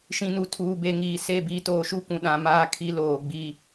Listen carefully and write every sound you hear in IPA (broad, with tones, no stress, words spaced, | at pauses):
ʃĩ˨nu˨tʰuː˨ be˨ ŋiː˨se˦˨ biː˨toː˨ʃu˦ kʷũ˨ ɗã˨maː˦ kʰi˦loː˨ɡ͡bi˦